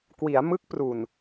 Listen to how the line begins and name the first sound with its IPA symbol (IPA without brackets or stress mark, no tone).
k